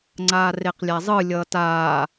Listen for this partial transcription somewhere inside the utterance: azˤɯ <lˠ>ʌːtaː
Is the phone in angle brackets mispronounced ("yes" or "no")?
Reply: yes